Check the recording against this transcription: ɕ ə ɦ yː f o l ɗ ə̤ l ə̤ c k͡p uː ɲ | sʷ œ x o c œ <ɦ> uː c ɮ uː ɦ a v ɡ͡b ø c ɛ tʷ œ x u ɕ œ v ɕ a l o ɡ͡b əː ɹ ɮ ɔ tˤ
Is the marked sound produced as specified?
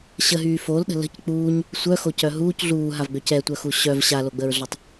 yes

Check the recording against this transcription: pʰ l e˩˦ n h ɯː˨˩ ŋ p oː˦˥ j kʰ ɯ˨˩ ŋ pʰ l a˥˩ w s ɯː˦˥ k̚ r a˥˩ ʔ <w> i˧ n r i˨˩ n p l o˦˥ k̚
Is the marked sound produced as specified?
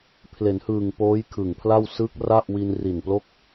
yes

